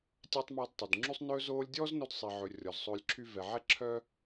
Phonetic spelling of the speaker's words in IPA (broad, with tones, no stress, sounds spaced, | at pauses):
tʲ æ˦ tˤ m ɔ˧ d tˤ ʉ˨ d ŋ͡ǁ y˦ sˤ n ɵː˧ z oː˧ lʲ dʲ ɔː˦ z n o˧ d sˤ i˨ ʕ ɵ˨ rʲ ɔ˨ z sˤ ɵː˧ lʲ ǁʰ y˦ v ɛ˨ ʕ ɛ˦ ǁʰ œ˦